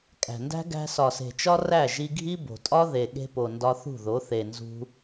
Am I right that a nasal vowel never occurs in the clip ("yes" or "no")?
yes